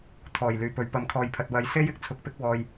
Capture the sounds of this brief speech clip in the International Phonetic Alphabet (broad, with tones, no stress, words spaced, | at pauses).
t̪ʰɔː˨˩jlyː˨˩pɵ˨ɥ pɐ˨˥mkʰɔː˨jpʰɐ˨t̚wɐ˧j se˥j ɪ˨k̚t͡sʰʊ˧k̚pɪ˥k̚ wɔː˧j